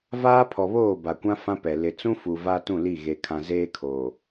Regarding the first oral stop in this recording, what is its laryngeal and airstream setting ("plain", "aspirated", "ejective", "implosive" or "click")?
aspirated